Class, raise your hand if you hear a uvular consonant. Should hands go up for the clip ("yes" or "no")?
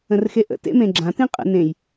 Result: yes